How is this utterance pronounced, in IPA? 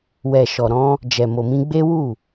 wɛ˨ʃɔ˨ɾɔ̃˧ | d͡ʒɛ˨mo˨mĩ˧ɡ͡be˦ wu˦˨

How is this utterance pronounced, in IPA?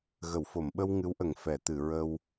ɣə˨˩˨wfo˨˩˨mɓə˧w ŋɨ˧˥wʔə˨˩ŋ fɛ˨˩˨t̪ɨ˨˩˨ ɹə˧w

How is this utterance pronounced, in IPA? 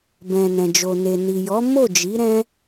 bɛ̃˨nɛ̃˨d͡ʒo˨ne˨ ni˨jɔ˨˦ mo˦˨d͡ʒi˨˦ ɾɛ̃˦

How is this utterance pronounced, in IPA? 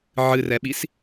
ʕɨrɛɓis

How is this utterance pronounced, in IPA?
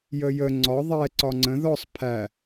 jəjə ŋ͡ǀɒ ðˤɛ ǀɒŋ͡ǀə̃ ðɔsˤ pʰæ

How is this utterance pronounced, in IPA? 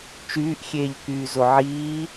t͡ʃyːʔxʲeːʎkyːzo ʕiː

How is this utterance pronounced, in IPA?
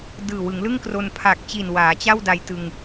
dɯː˨˩wɯ˩˦ŋlɯ˥˩ŋkro˧n pʰa˨˩k̚t͡ɕi˨˩n waː˩˦t͡ɕa˥˩wda˧j tɯ˧ŋ

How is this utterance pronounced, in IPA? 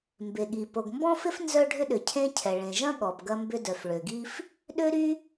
mbe˩ɠi˩ po˩ɡmbɔ̃˥fɪ˥f nzœ˥ ɖʱʏ˥ɗʏ˩cʰẽ˥cʰɛ˩ ɭẽ˩ʒɐ̃˥ ɠɔ˩p ɡɐ˥mbʏ˥dœ˩f ɭø˩ɡi˥f | ɗø˥ɾy˥

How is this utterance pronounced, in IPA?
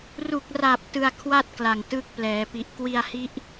ru˨˩k̚ra˨˩p̚ tɯ˧a̯ kʰwa˥˩t̚kla˨˩ŋ tɯ˦˥k̚plɛː˩˦pi˨˩ʔ kwi˧a̯hi˦˥ʔ

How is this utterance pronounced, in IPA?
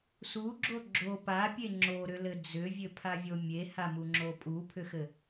suɡ͡ǁo ɡ͡ǁo papʲe ŋ͡ǁoɾʏlɘ d͡zʏvʲɘpʰavʲo mʲehamuŋ͡ǁo pʼupʰʏxɘ

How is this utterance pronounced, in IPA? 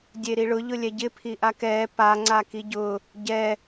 dʲeɾiɭʊ ʎʊlʲɛɟɪ pʰiʔakɛː pa ŋ͡ǀakiɟʊ | ɟɛ

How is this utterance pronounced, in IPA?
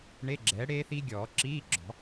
ɳe˧˥˧ɡ͡ǁɛː˩˥ ɽeː˦˥θi˦˥ ɡʲɔː˨˩˦ǁiː˧˥˧ɡ͡ǁɔ̤˨˩˦

